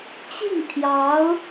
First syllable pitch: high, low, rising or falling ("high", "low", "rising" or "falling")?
falling